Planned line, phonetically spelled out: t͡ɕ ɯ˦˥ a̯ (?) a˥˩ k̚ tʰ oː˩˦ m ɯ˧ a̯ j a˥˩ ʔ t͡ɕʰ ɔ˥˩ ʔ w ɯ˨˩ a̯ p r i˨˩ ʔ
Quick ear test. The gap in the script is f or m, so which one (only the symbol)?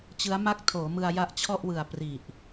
m